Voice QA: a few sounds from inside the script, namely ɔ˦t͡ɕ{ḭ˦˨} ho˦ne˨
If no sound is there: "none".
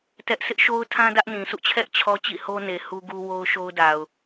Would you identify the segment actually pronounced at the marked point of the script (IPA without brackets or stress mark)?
ḭ˦˨